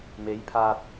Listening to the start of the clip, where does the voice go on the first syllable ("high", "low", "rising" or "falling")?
rising